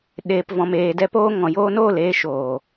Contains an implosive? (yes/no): yes